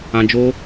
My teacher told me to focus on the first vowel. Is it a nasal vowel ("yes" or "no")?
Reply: yes